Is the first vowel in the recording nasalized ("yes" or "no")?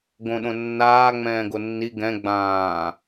yes